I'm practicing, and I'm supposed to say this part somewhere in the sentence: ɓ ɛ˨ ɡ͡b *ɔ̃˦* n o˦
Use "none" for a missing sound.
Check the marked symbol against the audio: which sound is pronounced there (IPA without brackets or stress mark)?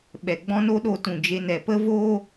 ɔ̃˦